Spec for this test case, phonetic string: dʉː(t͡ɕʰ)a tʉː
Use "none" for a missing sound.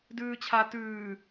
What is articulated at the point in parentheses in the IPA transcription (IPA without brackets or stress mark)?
t͡ɕʰ